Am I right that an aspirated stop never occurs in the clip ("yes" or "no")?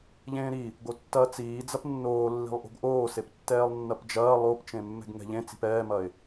yes